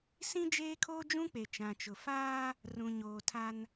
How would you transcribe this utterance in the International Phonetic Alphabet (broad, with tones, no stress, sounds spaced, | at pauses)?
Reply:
s ĩ˦ d͡ʒ eː˦ kʰ oː˦ d͡ʒ ũ˦ k͡p e˨ t͡ʃ ã˨ t͡ʃ ʊ˨ f aː˦ | r ũ˨ ɲ oː˨ tʰ a˦ n